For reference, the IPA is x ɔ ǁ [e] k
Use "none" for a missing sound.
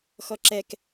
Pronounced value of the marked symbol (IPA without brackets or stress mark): ɛ